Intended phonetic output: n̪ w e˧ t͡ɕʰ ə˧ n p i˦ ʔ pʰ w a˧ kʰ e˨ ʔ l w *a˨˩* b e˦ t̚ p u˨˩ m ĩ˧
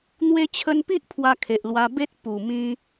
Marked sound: incorrect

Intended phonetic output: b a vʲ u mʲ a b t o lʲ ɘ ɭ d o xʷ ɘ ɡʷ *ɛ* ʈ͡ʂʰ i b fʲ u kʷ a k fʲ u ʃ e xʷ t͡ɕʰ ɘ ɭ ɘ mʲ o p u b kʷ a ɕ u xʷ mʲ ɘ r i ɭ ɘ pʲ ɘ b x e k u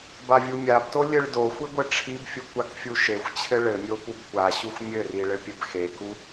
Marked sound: incorrect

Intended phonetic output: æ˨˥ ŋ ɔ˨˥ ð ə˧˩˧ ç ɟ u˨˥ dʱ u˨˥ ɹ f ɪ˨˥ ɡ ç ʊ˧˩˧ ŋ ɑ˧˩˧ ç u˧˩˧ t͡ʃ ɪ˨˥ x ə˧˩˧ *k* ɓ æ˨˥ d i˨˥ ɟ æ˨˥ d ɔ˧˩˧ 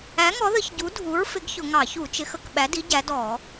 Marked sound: correct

